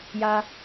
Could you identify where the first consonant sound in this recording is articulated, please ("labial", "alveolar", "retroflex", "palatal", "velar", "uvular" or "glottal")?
palatal